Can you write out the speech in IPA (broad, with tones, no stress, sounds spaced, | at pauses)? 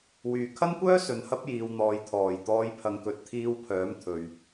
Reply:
w yː˨˩ kʰ ɐ˥ n kʷ œː˥ s ɵ˨ n h ɐ˥ p̚ j iː˨ w n̪ ɔː˨ j t̪ʰ ɔː˨˩ j t̪ ɔː˧ j pʰ ɐ˨˧ ŋ k ɵ˨˥ t̚ t̪ʰ iː˧ w pʰ œː˨˥ m t̪ʰ ɵ˨ ɥ